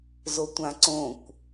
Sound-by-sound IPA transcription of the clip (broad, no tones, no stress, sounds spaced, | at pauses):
z o tʷ ã ǀ õ kʷ